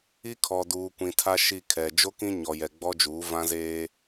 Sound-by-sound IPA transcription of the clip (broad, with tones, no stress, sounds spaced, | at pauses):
i˦ kʰ ɔ˨ d uː˨ kʷ ĩ˨ tʰ a˦ ʃ i˦˨ kʰ ɛ˨ d͡ʒ o˦ k ĩ˦ ɲ ɔ˨ j ɛ˨ ɡ͡b ɔ˦ d͡ʒ uː˨˦ v ã˦ z eː˦